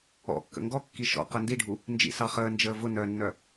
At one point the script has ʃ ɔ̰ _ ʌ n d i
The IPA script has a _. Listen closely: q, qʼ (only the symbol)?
q